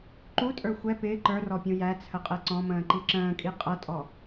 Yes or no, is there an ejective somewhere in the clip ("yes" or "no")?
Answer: yes